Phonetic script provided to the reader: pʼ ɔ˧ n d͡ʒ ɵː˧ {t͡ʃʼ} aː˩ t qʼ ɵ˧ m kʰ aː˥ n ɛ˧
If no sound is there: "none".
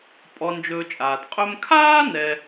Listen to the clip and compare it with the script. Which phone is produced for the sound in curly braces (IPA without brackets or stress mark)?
t͡ʃʼ